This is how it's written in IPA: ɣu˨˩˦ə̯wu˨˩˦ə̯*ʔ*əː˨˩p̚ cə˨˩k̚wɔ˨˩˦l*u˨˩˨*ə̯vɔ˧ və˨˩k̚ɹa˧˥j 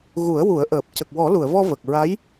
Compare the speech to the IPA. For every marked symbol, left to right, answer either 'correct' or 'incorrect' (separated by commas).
correct, correct